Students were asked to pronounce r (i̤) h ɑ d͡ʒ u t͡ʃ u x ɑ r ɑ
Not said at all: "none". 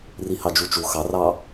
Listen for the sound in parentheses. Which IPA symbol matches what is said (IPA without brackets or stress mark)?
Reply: i